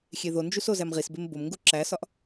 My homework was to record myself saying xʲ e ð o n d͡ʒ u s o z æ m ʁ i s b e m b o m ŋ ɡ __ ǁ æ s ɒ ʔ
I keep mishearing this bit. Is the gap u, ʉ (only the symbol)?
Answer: u